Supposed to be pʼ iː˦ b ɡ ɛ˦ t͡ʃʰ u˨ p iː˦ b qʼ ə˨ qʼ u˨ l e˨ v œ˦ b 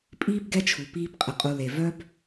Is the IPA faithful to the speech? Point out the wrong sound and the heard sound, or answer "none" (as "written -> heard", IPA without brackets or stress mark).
none